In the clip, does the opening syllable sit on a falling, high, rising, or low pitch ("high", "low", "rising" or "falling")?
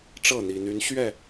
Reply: falling